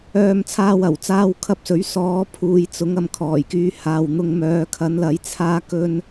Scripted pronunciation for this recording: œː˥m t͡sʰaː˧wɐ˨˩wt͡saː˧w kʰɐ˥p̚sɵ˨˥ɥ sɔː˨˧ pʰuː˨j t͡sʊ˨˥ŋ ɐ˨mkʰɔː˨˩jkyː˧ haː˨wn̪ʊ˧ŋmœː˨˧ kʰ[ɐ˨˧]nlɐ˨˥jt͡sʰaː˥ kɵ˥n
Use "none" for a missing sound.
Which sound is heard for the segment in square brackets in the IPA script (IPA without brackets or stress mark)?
ɐ˨˥